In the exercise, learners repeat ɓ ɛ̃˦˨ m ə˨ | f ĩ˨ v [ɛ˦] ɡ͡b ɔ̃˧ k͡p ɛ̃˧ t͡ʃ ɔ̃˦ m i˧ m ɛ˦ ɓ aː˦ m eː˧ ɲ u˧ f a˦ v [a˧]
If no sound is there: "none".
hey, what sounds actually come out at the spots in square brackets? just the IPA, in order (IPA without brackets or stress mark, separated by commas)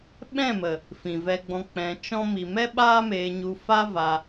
ɛ˧, a˧